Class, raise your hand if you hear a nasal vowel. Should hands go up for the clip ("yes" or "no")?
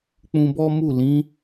yes